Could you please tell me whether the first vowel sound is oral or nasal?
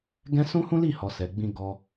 nasal